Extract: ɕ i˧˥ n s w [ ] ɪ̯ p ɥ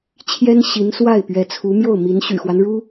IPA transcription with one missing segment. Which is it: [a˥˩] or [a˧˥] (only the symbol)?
a˥˩